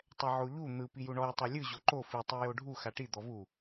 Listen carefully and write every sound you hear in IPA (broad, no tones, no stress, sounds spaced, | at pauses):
tˤ ɛ ʕ o ʎ u n̪ ɯ p i j u ɳ ɔ j tˤ ɛ lʲ ɯ ʑ o ǃ o f i tˤ i j o ɖʱ u x a ʈ i d̪ ɔ v u